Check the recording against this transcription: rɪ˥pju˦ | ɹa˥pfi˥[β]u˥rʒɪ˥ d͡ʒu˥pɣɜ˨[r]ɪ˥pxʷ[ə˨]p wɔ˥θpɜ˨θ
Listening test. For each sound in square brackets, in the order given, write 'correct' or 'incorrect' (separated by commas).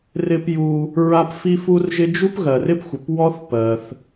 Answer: incorrect, correct, correct